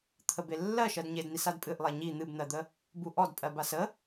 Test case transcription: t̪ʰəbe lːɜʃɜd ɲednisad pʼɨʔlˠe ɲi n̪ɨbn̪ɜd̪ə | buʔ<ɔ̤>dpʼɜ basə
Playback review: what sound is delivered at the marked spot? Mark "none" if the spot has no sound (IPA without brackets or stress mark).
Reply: ɔ